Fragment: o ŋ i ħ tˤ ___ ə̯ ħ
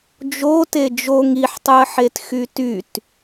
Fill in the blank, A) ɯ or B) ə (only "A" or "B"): A